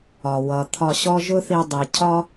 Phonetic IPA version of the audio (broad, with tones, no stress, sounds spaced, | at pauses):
ɒ˨ w ʌ˨ t̪ʰ ɒ˧ ɕ ɔ˦ ʒ ʊ˦ θ i˧ dˤ i˨ cʰ ɒ˦